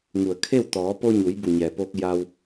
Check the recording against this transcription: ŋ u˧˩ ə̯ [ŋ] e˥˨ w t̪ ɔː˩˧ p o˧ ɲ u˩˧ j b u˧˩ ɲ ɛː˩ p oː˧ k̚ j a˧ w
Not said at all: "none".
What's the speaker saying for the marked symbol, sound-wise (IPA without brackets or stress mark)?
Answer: kʰ